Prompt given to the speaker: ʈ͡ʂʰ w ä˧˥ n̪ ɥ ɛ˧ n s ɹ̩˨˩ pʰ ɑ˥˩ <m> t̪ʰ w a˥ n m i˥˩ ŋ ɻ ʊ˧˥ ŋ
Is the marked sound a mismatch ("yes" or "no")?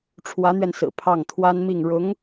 yes